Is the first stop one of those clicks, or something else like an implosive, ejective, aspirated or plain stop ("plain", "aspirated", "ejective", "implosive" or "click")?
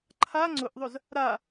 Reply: click